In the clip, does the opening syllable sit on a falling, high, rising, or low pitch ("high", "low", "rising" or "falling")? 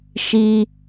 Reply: high